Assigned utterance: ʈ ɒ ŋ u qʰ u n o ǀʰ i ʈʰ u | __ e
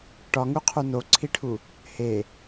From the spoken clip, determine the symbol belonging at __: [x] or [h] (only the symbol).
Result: h